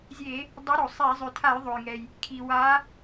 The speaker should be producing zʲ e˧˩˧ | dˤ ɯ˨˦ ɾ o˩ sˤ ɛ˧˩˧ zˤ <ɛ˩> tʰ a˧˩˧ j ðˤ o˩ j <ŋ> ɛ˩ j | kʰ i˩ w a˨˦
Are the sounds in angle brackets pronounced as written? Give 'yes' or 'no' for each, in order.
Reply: no, yes

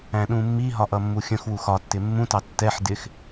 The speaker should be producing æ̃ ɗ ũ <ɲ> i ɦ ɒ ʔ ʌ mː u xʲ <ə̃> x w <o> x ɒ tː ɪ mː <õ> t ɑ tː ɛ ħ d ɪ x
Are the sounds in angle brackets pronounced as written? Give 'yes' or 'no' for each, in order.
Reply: no, yes, no, no

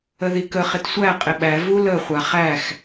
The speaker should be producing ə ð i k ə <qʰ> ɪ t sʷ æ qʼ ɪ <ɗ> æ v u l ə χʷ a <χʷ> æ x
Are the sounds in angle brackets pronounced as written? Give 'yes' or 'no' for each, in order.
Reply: no, no, no

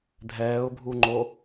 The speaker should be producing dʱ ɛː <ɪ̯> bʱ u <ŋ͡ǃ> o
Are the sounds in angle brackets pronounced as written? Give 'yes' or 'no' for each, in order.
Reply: no, yes

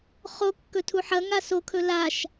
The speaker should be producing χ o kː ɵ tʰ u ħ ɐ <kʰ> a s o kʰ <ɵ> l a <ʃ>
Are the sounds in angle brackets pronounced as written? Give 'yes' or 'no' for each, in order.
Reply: no, yes, yes

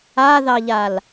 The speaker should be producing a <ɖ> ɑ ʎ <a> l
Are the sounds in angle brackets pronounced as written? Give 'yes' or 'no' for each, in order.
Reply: no, yes

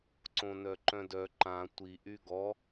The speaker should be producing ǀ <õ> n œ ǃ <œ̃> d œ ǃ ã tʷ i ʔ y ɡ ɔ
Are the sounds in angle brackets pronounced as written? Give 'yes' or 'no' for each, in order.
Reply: yes, yes

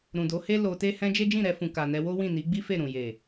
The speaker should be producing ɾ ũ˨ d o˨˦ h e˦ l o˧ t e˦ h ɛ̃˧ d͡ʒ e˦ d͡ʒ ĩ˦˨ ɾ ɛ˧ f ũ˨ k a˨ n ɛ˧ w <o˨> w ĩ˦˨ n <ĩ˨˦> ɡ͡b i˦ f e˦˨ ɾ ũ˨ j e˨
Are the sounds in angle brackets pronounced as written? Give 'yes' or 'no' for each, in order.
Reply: no, no

